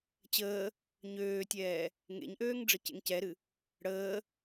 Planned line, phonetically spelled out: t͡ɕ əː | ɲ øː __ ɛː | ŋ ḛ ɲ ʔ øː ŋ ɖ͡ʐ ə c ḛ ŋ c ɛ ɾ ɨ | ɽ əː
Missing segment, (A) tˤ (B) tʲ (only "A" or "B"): B